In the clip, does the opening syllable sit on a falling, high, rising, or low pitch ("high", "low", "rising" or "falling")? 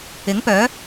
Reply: rising